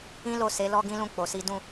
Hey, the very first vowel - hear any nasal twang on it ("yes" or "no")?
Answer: yes